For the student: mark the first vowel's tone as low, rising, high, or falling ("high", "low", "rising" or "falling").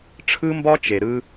high